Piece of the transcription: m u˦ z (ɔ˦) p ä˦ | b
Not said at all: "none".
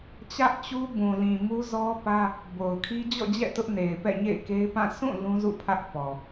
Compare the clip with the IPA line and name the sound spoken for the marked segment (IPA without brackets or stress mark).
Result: ɔ˦